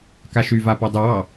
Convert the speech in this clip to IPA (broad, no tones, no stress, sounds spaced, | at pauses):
k a ʃ y v a p a dˤ u w ɑ